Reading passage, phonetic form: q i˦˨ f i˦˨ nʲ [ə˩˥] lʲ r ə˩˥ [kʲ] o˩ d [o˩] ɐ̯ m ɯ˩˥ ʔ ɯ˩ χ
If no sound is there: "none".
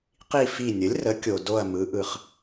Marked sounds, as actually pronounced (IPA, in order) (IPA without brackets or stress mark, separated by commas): ə˩˥, kʲ, o˦˨